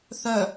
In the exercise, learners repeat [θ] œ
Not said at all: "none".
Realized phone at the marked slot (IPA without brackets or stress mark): θ